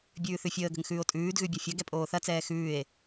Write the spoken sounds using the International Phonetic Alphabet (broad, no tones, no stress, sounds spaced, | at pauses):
bʲ ʉː θ ʉ fʲ əː ɡ ə̤ ŋ x ʉː o̯ tʼ ʉː d ɣ ʉ bʲ ɐ fʲ ɐ ɡ ɛ pʼ oː θ ɐ t͡s ɛː x ʉː e̯